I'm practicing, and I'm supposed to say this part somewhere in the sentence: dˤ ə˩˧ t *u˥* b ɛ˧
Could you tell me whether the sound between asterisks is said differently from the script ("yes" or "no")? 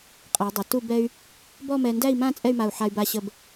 yes